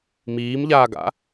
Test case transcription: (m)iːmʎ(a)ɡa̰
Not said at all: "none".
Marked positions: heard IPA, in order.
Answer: m, aː

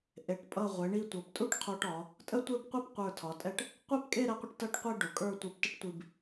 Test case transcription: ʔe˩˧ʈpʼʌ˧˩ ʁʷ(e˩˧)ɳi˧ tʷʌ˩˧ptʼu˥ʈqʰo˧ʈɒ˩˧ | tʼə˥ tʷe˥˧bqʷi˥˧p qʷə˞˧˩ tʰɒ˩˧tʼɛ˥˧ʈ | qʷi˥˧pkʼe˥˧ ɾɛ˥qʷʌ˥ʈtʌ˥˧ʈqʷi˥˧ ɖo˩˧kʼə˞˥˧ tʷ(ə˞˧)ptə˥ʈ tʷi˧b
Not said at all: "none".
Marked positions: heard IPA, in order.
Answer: e˩˧, ə˞˧

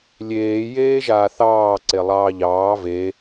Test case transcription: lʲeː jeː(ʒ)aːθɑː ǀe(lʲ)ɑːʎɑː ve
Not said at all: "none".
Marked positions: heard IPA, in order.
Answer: ʒ, lˠ

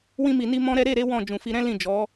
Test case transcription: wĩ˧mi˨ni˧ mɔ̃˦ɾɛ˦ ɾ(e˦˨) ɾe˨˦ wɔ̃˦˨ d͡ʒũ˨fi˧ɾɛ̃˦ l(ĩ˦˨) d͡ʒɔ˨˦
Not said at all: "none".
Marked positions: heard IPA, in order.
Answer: e˦˨, ĩ˦˨

